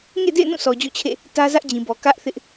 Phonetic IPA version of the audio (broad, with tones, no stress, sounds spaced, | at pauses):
ŋ ḛ˦˨ d ḛ˦˨ ɪ̯ n ũ˦˨ s ɔ˨ d͡ʑ ɔ̰˦˨ t͡ɕʰ ḛ˦˨ | t ä˦ z ä˦ ʔ d͡ʑ ĩ˨ b ɔ˨ k ä˦ ʔ θ ɪ˦ ʔ